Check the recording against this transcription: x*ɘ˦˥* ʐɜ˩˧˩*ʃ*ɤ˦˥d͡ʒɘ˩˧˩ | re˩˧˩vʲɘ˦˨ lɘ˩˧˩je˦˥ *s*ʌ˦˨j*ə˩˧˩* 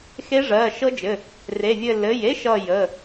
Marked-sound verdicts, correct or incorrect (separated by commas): incorrect, correct, incorrect, correct